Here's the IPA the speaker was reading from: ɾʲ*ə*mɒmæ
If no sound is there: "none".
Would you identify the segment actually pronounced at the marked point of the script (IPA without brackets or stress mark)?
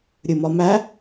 ɨ